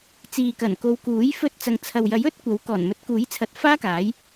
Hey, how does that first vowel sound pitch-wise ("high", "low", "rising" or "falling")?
low